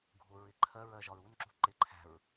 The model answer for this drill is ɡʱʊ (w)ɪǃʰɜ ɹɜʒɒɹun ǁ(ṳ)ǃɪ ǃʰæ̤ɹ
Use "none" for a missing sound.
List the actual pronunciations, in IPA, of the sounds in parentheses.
ɹ, ṳ

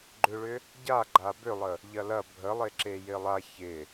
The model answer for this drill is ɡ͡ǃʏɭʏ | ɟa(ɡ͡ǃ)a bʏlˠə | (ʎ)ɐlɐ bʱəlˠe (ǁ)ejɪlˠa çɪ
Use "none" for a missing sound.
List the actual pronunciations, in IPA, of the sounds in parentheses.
ɡ͡ǃ, ʎ, ǁ

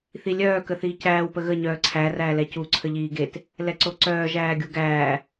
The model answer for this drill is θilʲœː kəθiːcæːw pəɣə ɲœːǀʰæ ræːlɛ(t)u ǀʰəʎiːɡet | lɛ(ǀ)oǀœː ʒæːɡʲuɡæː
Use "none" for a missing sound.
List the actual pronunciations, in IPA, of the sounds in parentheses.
c, ǀ

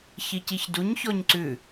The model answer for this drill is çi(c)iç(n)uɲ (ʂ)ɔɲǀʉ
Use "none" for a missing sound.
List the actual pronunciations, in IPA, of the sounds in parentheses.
c, d, ç

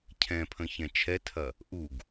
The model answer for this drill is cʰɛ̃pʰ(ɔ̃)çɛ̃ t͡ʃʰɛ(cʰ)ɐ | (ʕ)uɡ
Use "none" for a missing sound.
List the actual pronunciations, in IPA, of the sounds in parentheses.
ə̃, tʰ, ʔ

